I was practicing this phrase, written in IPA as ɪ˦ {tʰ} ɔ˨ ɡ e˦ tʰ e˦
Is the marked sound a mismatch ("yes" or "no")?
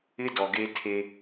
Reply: yes